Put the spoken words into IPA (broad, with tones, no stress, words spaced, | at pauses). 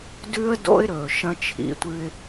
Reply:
dʉ˦ə̯do̰˦ɪ̯ɾɵː˨ ʃɐ̃˦t͡ʃʰḭ˨˦tʷɨ˦ɪ̯